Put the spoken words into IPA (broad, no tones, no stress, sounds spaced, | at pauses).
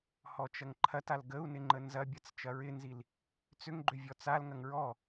h ɔ t͡ʃ ɐ ŋ ǃʰ ɐ t a l ɡ ə u̯ n ɪ ŋ͡ǃ ə n z ɐ bʲ ɐ t͡s t͡ʃ ɐ ɹ ɪ n z i l | t͡s ʏ ŋ ɡ͡ǃ ʏ vʲ ɔ t͡s a l ŋ ɐ ŋ ɹ ɔ